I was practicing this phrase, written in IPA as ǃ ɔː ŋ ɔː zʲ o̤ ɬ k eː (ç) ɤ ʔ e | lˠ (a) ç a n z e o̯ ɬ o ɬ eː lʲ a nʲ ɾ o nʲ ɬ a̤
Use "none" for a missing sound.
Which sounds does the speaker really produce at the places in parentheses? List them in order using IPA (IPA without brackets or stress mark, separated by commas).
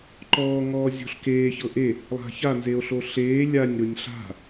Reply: ç, a̤